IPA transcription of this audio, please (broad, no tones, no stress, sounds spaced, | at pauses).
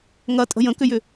ŋ ɐ tʼ ə̤ j ə̃ k ʏ j ʏ